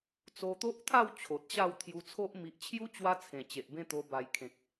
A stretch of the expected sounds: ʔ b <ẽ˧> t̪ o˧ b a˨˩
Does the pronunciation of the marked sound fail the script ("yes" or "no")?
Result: yes